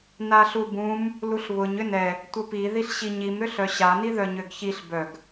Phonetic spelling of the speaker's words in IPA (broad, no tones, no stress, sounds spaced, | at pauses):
n a ɬ u b ũ m | l u ɬ β ʊ ɲ ʏ n ɛ | tʷ ə p i ð i ɬ ɕ i ɲ i m ɾ ʏ ɬ œ ɕ a n i ð œ ɲ ø ɡ ç i ɬ b œ ɡ